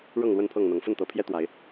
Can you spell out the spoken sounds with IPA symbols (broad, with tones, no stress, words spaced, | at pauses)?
ɻɤ˥˨ŋlwə˥˨npʰɤ˥˨ŋn̪ɤ˨˦ŋ fə˥˨nt̪ɤ˨˦pʰjɛ˦ t̪wa˨˦ɪ̯